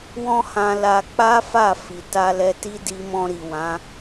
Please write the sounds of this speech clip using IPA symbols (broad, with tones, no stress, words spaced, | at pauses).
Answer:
wɔ̃˦hã˧la˧k͡pa˦ fa˦˨ fi˨ta˧lɛ˧ ti˦di˧mɔ̃˧ɾi˨ wã˨˦